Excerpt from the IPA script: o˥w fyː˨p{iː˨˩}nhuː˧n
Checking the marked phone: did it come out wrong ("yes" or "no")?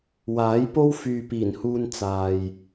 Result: no